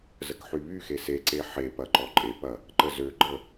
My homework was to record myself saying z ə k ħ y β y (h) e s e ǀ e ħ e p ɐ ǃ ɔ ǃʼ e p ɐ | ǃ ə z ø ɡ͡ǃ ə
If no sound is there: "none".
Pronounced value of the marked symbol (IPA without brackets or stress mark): x